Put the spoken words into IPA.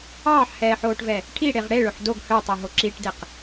ɑː ħ h ɛː ħ oː ʈ v ɛ | ʈʰ i ɽ e ʁ ɽ e ɭ ɵ ħ d o ɡ h œ tˤ e ɦ o ǁ i ʈ d e q

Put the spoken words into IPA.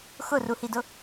x ʊ r u h i d ʊ

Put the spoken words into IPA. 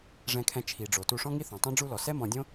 ʐ ɛ̃˨ kʰ ɛ̃˨ t͡ʃʰ i˨ ɖ͡ʐ o˨ t u˧ ʂ ɔ̃˦ ŋ i˦ θ õ˨ tˤ õ˦ ɖ͡ʐ u˧ l ɔ˨ s ɛ˦ m ɔ̃˧ dʲ õ˦

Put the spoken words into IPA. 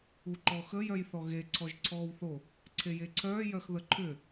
u ǃ ɔ x ə j œ j θ ɔ ɣ e ǀʰ ɔ ʒ ǀʰ ɔː w θ o | ǀʰ e j e ǀʰ œː j œ x ð ə ǃʰ ʏ

